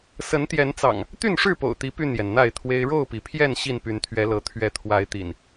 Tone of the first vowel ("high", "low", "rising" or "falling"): rising